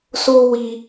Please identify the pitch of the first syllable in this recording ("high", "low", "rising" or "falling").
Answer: high